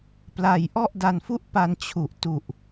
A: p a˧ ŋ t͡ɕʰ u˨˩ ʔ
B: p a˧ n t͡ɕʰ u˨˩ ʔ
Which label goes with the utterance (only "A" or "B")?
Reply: B